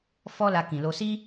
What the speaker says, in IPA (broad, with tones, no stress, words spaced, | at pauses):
fɔ˦ la˧kĩ˨lo˧ si˦